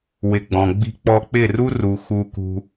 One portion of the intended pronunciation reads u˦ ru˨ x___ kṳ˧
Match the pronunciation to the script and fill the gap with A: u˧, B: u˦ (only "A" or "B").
B